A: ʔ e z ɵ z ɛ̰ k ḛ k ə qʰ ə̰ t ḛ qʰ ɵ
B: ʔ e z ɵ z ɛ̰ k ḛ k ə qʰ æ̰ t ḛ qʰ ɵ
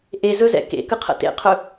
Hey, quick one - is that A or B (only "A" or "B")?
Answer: A